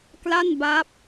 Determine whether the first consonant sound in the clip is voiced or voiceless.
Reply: voiceless